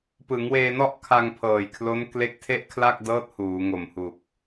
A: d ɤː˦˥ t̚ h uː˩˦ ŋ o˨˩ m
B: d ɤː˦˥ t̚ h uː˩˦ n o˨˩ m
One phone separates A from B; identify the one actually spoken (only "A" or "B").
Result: A